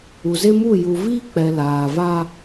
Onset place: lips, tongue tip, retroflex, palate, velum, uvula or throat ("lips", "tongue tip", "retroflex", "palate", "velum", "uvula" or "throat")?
tongue tip